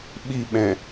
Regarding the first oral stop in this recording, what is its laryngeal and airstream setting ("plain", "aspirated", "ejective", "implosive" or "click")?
implosive